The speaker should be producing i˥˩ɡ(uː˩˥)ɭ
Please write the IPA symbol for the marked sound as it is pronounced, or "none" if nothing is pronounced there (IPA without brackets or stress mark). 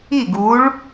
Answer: uː˩˥